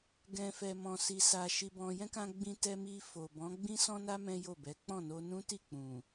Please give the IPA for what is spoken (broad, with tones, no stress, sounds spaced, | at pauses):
ɡ ɛ̃˨ f ɛ˨ m ɔ̃˨ s i˨ s a˨ ʃ i˧ b ɔ̃˧ j ɛ̃˦ k ã˧ ɡ͡b ĩ˧ t ɛ˧ m i˧ f o˨ b ɔ̃˨˦ ɡ͡b ĩ˦ s ɔ̃˦ n a˦ m ɛ̃˦ j o˦˨ b ɛ˨˦ k͡p ɔ̃˦˨ n o˧ n ũ˦ t i˦˨ k͡p ũ˨